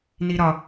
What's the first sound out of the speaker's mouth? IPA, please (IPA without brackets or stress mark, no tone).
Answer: n